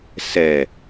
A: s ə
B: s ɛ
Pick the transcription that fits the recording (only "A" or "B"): B